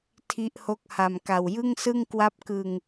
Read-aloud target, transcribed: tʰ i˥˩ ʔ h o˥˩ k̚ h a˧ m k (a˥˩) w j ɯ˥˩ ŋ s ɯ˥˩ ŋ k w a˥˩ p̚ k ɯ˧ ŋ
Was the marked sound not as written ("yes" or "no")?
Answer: yes